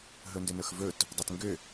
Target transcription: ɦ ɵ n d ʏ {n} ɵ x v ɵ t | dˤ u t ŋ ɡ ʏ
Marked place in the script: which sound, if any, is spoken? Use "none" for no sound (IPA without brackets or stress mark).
n